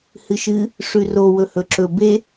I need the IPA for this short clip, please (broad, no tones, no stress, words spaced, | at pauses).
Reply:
hɨʃɨ | ʂʉro wɵhɵǁɵ be